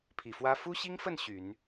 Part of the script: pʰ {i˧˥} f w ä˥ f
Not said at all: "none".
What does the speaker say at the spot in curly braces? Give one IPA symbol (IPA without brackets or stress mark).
i˨˩